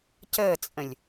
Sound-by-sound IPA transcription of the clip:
c əː t͡sʼ ə̃ lʲ

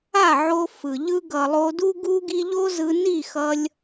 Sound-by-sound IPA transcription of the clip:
a˦˨ ʕ o˧ f ɯ˨ ʎ ɯ˦ ɡ ʌ˨ lˠ o˧ d u˦ ɡ u˦ ɡ i˦ ʎ o˦ z ɯ˧ n i˦˨ x ʌ˧ lʲ

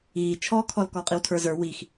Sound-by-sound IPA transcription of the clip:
iː t͡ʃʰ ɔː kʰ ɔ l k ɔ qʼ i w tʰ ə˞ z ə˞ w i x

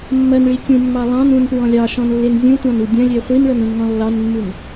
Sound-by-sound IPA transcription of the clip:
mː ɐ n ɭ i kʲ ũ mː ɑ lˠ ɑ̃ n ũ n p ɹ ɔ̃ lʲ ɑ ʃ ɔ̃ n lː e n zʲ ũ tʷ ɑ̃ n u dʲ ɐ̃ lʲ e χʷ i n ɭ ʌ n ũ n ŋ ɔ̃ lː ɑ n mː u n

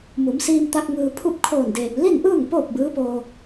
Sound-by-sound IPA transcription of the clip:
m u˩˧ m s iː˧ m t̪ a˧ k̚ ŋ ɯː˧ pʰ u˥˨ p̚ kʰ oː˧˩ n d eː˩ m l i˥˨ n ʔ ɯː˥˨ ŋ p oː˥˨ p̚ b ɯː˧˥ p oː˧

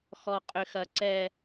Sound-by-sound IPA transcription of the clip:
x ɔ˨ qʼ ʏ˨ x ɐ˨ ǀ ɛ˨

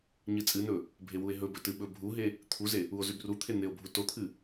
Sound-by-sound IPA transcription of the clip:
ɲ ɨ t͡sʼ ɨ n ɵ | bʱ e w u e̯ ɦ ɵ b ɵ t ɨ ɓ ɵ bʱ u ɦ e | t̪ʰ u z e | u o̯ z ʉ b r u t̪ʰ e n̪ e o̯ bʱ u t o t̪ʰ ɨ

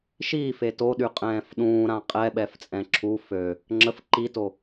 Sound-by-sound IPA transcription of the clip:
ʃ iː f e t o ɗ y qʼ ɛ̃ː f ɗ ũː ɾ ã qʼ ɛ ɓ ɛ f t͡sʼ ɛ̃ ǁʰ u f ø | ŋ͡ǁ ə f ǃ i t o

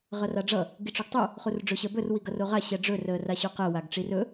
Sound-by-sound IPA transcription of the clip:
ʁ ʌ r a ɖ͡ʐ ʌ | ɡ i ʈ͡ʂ o ɡ tˤ o | χ u r ɖ͡ʐ ɵ ɕ ɜ b ɵ r w i ɡ ʌ r o ʁ a ɕ ɛ ɖ͡ʐ ɵ r əː r a ɕ o q ɜ w a ɡ ʈ͡ʂ i r ɵ

